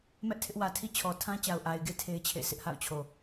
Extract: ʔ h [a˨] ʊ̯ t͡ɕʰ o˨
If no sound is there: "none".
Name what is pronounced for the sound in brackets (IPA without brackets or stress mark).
a̰˦˨